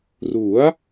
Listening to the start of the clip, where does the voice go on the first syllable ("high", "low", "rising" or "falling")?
rising